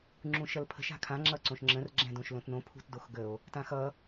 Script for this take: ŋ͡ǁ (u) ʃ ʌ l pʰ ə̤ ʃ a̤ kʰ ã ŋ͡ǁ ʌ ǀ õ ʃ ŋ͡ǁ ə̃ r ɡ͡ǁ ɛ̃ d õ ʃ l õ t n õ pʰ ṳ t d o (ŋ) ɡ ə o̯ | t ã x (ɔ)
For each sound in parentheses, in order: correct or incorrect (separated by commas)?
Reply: incorrect, incorrect, incorrect